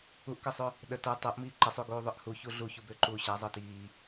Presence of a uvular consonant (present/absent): absent